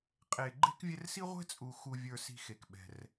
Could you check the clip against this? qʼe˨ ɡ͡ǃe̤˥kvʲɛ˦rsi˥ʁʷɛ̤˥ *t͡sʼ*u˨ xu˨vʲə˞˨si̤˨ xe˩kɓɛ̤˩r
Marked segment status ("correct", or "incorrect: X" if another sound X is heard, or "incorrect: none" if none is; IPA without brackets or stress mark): correct